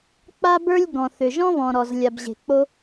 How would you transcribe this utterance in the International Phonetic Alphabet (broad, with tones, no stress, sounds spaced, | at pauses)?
k͡p a˥ b ə˞˥ lʲ ɡ ɔ̃˩ θ ʏ˩ ʒ ɔ̃˥ β ɔ̃˩ ɾ ɔ˩ z lʲ a˩ b ʑ e̤˩ k͡p o˥